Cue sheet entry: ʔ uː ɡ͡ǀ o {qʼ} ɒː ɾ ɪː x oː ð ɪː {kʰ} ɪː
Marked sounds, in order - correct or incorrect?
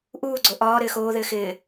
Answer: incorrect, incorrect

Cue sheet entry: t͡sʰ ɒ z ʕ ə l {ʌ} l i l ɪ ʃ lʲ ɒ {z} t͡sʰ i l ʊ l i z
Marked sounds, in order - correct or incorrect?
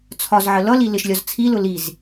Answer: correct, correct

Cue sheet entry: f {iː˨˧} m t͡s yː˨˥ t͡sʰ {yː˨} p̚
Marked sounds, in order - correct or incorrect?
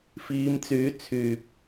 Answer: correct, correct

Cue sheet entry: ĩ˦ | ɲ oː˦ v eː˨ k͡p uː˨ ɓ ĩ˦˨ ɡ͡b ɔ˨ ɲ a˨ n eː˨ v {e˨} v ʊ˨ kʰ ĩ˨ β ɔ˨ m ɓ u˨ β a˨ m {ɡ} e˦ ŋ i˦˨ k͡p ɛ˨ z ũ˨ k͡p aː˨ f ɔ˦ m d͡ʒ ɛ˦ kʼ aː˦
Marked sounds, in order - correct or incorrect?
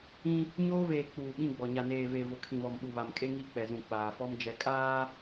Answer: correct, incorrect

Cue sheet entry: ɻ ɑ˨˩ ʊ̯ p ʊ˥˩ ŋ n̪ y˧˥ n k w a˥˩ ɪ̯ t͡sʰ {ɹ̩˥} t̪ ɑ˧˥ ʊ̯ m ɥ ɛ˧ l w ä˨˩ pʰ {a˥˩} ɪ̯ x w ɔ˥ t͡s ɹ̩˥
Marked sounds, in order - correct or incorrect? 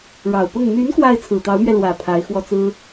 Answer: incorrect, incorrect

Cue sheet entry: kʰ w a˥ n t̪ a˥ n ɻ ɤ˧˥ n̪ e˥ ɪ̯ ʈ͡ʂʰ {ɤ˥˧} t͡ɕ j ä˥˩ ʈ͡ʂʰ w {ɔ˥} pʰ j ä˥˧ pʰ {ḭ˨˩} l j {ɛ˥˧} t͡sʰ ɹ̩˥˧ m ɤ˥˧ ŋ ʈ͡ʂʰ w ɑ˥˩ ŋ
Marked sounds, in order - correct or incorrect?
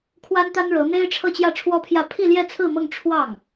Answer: correct, correct, incorrect, correct

